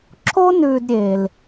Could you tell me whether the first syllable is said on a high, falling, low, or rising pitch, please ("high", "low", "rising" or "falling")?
high